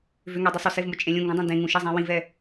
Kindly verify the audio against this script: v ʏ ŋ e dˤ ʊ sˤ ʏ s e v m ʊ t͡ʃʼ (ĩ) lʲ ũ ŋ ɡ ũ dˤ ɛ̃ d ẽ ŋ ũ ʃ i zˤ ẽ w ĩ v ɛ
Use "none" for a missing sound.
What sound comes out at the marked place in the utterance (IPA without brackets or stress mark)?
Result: ẽ